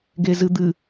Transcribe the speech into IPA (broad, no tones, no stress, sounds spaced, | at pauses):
ɡ e z ɨ d̪ ɨ